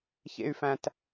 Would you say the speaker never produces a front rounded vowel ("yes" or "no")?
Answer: no